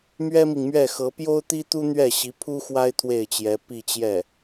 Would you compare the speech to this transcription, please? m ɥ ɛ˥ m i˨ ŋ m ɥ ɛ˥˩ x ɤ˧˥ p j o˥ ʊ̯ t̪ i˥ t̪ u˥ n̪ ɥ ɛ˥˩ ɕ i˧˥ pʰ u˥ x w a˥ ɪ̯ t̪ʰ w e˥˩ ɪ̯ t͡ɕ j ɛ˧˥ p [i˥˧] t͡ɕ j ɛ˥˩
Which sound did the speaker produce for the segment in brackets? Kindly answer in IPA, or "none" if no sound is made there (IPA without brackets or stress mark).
i˥˧